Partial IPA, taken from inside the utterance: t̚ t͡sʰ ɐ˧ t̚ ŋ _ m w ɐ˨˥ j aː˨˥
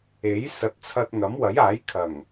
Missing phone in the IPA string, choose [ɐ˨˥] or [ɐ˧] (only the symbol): ɐ˨˥